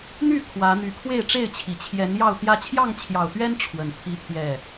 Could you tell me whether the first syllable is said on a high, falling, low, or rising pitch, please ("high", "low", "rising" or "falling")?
falling